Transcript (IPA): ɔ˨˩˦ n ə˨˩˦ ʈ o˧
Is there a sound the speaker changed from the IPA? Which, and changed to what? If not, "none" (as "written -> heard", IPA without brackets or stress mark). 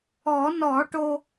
ə˨˩˦ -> ɔ˨˩˦